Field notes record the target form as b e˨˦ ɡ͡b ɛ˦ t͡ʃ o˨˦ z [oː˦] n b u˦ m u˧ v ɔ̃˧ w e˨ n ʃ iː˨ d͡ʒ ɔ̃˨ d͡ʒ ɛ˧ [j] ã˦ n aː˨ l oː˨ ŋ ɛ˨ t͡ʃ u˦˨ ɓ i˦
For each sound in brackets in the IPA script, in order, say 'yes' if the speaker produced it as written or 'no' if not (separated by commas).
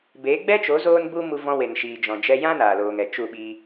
yes, yes